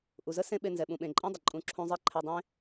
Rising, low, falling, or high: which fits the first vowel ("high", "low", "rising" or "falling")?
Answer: low